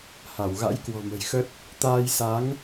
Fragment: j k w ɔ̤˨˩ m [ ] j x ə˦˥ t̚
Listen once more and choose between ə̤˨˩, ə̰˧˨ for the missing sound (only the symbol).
ə̤˨˩